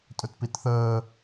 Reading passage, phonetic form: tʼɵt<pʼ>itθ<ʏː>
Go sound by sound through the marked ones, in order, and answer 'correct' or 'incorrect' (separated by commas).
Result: incorrect, incorrect